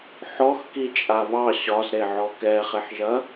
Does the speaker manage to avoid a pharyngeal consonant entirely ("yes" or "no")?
no